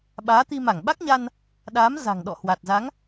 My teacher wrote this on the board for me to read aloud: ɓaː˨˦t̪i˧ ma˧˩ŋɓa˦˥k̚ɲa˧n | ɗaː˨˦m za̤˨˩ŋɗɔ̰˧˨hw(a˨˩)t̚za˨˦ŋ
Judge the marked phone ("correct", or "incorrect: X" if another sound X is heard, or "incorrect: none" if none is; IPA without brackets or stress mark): correct